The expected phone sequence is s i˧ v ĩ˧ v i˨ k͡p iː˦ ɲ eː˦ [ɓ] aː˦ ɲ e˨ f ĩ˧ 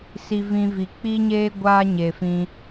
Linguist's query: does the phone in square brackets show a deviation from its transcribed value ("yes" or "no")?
yes